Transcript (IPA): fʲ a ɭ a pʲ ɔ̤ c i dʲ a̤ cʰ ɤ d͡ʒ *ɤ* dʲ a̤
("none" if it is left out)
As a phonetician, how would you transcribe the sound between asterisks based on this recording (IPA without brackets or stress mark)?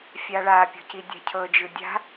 ɯ